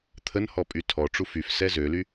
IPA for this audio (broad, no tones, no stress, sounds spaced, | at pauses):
t̪ʰ ə n h ɔ pʼ y tʰ ɔ ʈ͡ʂ u f y f s ɛ z ø l y